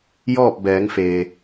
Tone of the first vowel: falling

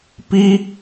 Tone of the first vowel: high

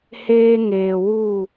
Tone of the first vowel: high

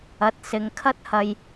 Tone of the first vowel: rising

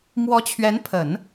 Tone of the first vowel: rising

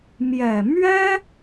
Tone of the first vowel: low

